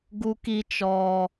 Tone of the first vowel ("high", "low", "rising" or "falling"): high